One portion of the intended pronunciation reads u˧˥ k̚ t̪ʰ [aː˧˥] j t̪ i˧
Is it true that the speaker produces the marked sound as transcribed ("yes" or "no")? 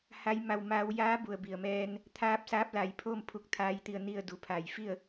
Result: yes